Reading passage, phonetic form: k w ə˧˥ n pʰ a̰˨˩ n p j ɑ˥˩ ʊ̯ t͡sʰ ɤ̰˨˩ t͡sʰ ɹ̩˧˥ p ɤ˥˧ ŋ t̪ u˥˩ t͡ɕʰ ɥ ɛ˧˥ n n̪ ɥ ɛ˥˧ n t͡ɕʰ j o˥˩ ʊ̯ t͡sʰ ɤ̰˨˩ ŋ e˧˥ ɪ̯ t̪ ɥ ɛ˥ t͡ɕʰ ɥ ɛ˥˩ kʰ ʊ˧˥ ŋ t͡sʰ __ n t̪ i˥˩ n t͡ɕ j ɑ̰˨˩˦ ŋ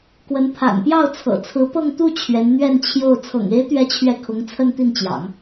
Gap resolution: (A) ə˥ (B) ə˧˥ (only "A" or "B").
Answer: A